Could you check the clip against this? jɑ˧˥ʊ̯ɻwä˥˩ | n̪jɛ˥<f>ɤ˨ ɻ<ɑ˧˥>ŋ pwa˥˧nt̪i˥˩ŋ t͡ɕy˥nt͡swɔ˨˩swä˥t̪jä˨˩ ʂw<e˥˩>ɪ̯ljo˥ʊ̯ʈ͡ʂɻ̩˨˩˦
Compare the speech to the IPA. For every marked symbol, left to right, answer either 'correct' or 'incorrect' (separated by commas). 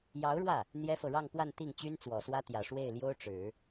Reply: correct, incorrect, correct